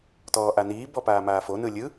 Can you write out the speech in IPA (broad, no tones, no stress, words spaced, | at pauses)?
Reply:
tɔːʔaniː bɔpaːmaːfo nɯlʲɯ